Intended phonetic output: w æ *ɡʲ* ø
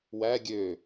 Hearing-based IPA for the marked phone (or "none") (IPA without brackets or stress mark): ɡʲ